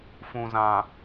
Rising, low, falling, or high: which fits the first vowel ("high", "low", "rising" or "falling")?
low